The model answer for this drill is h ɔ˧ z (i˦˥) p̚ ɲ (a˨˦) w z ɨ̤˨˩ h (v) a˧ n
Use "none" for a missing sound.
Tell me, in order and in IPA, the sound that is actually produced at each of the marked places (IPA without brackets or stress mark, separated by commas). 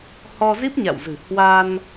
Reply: i˦˥, a̰˧˨, w